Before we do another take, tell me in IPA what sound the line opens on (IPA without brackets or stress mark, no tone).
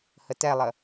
h